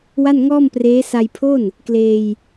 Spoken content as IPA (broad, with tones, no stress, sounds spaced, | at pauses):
w a˥˩ n ŋ ɔː˥˩ m p r eː˦˥ s a˧ j pʰ o˥˩ n | k l eː˧ j